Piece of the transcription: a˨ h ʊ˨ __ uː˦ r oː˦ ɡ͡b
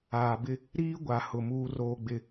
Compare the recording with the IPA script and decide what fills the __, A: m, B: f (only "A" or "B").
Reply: A